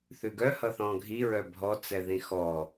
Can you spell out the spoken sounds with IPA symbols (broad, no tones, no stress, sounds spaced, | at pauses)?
θ ʉ ɡ œ h ʌ θ ɔ̃ ɡʱ i ɹ œ bʱ ɔ t͡s ɛ ð ĩ x ɔ